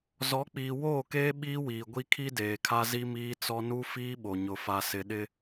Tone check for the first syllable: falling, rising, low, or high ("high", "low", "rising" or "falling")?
rising